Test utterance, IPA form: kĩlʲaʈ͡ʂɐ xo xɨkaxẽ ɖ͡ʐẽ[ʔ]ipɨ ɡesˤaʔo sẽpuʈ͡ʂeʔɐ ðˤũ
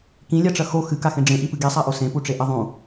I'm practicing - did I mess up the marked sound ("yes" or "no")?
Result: no